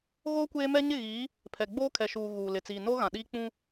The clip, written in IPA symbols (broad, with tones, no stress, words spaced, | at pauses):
ɣo˦ kʷeː˦mɛ˦ ɲɪ˦˨ɣiː˨˦ | pʰɛ˨ɡ͡boː˦kʰɛ˨ʃuː˨ ɣuː˨lɪ˨t͡siː˨ no˦ɣã˨ɗiː˦ k͡pũ˦